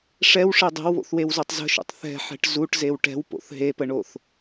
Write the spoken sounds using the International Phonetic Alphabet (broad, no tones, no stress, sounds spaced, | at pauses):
ʂ ɛ w ʂ e dˤ e̤ w β o̰ θ w e w z o tˤ z ə̤ ʃ ṵ tˤ θ ɛ̤ ħ ɛ̤ ʈ z u ʈ z e w ʈ ɛ̤ w p o̰ θ ɦ e p ə ɳ o θ